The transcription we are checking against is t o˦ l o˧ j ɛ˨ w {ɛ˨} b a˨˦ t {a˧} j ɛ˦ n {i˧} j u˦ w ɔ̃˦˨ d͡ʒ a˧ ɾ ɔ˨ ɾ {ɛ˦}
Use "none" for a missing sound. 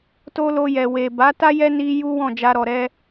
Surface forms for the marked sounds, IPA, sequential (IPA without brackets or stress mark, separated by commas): e˨, a˦, i˧, ɛ˧